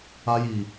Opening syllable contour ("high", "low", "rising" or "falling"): high